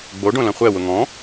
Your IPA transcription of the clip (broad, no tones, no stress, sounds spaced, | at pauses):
ɡ͡b o ɖ õ l ɐ̃ χʷ ɛ w ʊ ŋ ɔ̃